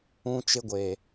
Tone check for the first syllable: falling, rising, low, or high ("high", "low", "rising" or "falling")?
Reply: high